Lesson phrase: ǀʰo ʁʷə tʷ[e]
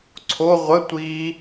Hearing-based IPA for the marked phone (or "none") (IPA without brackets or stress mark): i